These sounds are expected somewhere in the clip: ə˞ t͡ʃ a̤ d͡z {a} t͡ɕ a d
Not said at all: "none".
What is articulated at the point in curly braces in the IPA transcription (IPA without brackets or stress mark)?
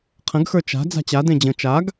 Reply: a̤